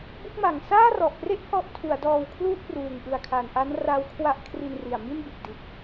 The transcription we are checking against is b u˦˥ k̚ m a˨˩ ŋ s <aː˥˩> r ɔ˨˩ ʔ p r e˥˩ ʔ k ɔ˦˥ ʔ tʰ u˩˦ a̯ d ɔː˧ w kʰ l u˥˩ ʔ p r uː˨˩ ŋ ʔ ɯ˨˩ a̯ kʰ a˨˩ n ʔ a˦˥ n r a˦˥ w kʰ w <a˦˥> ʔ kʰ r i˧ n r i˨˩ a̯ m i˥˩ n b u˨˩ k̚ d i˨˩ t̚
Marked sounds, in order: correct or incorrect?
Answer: correct, correct

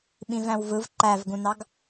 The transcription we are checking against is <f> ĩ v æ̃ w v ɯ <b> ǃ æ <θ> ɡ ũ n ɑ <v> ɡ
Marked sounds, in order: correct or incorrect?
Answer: incorrect, incorrect, incorrect, incorrect

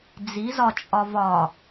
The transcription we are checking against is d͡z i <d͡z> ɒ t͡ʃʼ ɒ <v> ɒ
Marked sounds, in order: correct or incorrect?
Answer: incorrect, correct

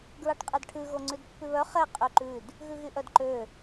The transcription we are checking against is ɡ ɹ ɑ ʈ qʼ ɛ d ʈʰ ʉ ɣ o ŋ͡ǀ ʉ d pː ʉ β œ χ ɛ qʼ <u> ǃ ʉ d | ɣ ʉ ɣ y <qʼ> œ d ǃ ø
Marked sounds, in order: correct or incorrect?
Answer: incorrect, incorrect

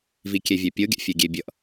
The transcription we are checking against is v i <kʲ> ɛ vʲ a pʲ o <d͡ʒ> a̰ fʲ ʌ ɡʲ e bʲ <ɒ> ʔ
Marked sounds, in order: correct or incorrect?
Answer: correct, incorrect, incorrect

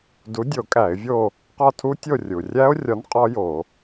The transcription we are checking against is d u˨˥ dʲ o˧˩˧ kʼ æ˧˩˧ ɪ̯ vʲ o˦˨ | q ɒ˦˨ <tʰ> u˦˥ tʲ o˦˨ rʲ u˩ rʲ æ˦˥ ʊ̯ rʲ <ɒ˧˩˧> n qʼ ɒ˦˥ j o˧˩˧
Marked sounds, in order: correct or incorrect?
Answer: correct, incorrect

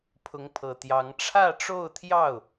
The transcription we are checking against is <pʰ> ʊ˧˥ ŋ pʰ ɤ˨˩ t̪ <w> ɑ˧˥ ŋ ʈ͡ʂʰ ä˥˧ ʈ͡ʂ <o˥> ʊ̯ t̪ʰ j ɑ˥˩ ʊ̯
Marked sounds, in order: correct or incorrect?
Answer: correct, incorrect, incorrect

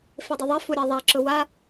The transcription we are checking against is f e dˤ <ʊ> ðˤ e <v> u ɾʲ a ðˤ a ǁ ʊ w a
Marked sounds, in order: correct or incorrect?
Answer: correct, incorrect

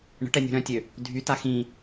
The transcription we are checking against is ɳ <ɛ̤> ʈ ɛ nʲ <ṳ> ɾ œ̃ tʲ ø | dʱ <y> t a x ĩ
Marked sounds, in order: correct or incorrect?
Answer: incorrect, correct, correct

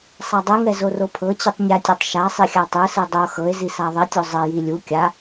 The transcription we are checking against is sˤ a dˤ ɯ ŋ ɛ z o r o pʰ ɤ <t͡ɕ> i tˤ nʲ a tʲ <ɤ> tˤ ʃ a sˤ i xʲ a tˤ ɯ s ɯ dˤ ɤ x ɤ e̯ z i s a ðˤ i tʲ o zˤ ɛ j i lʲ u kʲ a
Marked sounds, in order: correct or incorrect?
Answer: correct, correct

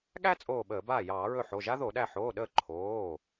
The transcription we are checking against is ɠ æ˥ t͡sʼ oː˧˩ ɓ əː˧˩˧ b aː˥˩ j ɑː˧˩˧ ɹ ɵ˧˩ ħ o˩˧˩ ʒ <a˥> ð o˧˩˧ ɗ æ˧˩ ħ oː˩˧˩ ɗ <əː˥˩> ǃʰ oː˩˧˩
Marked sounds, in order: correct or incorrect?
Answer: correct, correct

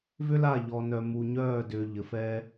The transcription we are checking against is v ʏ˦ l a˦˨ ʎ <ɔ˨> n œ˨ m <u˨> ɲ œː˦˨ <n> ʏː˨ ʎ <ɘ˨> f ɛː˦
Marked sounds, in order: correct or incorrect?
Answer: correct, correct, incorrect, correct

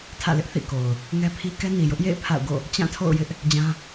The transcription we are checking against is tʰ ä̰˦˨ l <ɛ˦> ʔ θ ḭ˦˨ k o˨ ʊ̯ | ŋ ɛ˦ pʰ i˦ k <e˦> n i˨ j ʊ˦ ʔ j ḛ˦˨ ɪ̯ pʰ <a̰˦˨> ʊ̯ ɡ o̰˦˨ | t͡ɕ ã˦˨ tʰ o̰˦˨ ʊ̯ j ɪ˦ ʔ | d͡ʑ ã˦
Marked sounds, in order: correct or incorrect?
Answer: incorrect, incorrect, correct

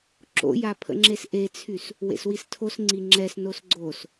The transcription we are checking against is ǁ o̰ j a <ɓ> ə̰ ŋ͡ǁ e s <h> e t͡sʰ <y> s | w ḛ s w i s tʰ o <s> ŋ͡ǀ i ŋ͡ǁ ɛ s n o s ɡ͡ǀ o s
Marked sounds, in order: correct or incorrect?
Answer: incorrect, incorrect, correct, correct

